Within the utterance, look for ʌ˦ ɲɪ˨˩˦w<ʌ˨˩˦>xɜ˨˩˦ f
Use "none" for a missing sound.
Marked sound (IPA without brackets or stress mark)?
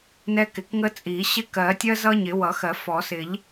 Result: ʌ˨˩˦